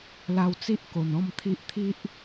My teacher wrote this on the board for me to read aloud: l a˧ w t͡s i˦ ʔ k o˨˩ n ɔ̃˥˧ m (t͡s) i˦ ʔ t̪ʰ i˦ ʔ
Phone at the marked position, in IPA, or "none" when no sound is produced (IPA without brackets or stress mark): t̪ʰ